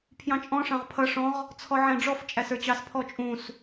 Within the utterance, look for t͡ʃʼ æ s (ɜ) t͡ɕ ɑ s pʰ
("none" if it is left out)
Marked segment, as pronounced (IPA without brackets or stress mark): ə˞